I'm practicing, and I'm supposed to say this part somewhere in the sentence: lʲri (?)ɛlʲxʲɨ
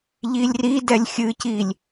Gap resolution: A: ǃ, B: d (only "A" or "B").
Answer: B